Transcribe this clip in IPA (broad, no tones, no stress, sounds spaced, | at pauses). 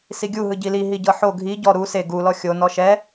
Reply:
s i ɡʲ u ɦ ɯ ɟ i l i ɦ i ɟ ɤ ħ o ɡʱ i ɟ ɔ ɾ u s e ɡ u l ɔ xʲ o n ɔ ʃ ɛ